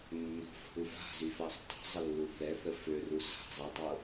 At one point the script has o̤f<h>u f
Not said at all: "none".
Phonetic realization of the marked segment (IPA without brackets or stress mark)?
h